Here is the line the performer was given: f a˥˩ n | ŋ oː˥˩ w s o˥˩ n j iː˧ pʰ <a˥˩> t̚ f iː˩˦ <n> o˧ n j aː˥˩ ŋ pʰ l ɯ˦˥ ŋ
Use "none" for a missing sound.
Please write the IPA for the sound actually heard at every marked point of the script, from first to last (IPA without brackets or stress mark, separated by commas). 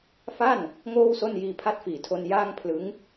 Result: a˦˥, tʰ